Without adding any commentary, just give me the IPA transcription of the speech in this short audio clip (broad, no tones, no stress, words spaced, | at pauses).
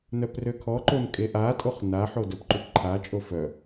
nœprøkʰɔǃon kʼeʔatʼoχ naħo dœpǃypǃʰat͡ʃʼo fœ